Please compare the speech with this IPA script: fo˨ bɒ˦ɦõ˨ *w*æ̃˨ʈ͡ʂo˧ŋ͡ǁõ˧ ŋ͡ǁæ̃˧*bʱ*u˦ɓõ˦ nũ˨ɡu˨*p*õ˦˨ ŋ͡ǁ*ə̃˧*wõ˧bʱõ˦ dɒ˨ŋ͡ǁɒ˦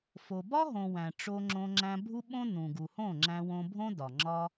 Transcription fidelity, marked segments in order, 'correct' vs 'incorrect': correct, correct, incorrect, incorrect

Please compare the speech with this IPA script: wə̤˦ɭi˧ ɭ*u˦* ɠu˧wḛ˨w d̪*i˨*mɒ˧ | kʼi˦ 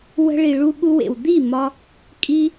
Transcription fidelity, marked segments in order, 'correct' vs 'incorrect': incorrect, incorrect

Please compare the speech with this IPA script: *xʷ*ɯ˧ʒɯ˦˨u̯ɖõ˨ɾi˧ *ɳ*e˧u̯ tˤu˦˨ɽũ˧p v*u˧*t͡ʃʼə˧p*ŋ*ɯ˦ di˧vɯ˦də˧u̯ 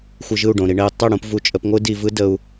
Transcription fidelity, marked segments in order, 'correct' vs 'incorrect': correct, correct, correct, incorrect

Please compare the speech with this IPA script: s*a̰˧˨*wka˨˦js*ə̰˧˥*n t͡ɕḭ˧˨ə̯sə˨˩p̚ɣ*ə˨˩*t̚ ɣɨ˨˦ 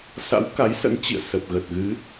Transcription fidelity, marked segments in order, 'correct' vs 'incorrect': incorrect, correct, correct

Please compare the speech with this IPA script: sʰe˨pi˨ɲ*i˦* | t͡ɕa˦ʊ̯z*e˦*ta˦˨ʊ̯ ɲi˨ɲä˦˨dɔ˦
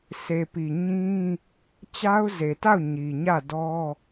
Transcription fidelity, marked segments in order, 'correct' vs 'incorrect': incorrect, incorrect

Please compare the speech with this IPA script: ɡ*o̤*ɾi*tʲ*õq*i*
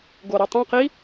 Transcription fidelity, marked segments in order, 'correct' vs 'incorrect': incorrect, incorrect, correct

